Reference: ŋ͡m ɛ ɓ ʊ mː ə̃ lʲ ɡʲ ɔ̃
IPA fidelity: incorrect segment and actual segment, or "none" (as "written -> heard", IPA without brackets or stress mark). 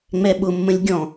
none